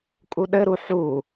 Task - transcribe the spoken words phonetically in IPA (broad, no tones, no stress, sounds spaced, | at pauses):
kʼ u ɗ ɘ ɾ u ħ u